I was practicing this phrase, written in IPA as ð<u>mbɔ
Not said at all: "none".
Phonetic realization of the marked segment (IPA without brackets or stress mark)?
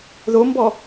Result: o